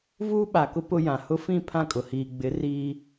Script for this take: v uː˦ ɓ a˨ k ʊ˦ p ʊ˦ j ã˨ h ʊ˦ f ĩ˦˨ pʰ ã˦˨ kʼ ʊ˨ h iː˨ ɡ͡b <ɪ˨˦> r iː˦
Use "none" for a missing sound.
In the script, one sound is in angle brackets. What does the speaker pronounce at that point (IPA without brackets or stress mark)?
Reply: ɪ˨˦